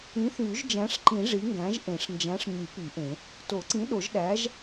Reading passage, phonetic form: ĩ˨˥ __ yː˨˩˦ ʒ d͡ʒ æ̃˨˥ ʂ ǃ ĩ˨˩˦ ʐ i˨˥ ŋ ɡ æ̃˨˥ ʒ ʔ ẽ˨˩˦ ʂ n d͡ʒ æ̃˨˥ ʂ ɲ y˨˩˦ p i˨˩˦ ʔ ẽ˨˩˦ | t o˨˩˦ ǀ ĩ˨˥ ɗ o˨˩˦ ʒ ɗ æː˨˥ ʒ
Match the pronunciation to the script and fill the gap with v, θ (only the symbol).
θ